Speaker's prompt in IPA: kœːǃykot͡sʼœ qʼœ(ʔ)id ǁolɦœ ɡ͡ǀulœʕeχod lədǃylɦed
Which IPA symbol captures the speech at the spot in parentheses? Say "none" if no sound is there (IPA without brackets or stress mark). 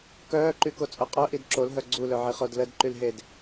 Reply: ʔ